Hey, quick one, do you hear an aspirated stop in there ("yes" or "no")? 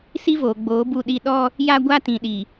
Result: no